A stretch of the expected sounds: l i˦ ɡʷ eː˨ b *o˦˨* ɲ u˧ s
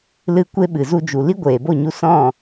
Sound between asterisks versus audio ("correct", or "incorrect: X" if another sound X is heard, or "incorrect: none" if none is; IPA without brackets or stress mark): correct